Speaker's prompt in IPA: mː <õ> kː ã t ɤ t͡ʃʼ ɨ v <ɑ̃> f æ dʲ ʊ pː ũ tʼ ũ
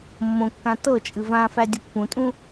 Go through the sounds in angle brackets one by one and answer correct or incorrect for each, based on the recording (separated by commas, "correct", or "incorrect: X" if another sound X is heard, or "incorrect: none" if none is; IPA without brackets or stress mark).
correct, incorrect: ã